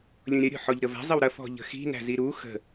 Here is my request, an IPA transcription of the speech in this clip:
lʲũɾʲɐ ɾʲɔ̤ħɔʎɾəvæ̤ zˤəwɾɐ fɔ̤ʎə̤xi̤ næ̤ziɾu xə̤

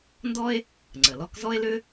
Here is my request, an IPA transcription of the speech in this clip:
ndɔ˥e̯ | ŋ͡ǀə˩lɔ˥k zɔ˥e̯lʏ˥

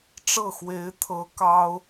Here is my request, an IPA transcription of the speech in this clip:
ʈ͡ʂɤ˥˩xwe˧˥ɪ̯t̪ʰɤ˧˥ kɑ˥ʊ̯

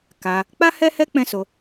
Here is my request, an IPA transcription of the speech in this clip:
ka˧ | k͡pa˦hɛ˦hɛ˦ k͡pɛ̃˦so˧

